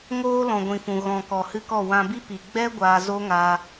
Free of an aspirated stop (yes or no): yes